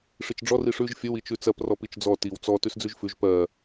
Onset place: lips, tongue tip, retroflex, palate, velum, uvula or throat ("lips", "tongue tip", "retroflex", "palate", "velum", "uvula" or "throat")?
retroflex